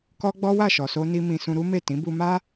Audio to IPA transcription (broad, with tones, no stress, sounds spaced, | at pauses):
k ɔ˦ ɡ͡b ɔ˦ w a˦˨ ʃ ɔ˨ s o˧ n i˧ m ĩ˧ s ũ˧ ɾ u˦ m e˦˨ t ĩ˨˦ b u˧ m a˦